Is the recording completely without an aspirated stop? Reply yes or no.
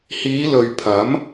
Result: no